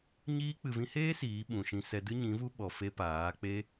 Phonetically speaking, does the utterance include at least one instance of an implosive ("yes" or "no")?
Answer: yes